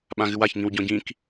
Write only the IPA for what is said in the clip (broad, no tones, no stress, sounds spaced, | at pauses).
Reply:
ɓ ã ɣ ɨ w a ç ŋ ĩ w ɟ ɔ̃ ɟ ĩ k